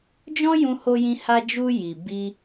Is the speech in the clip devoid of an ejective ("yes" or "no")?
yes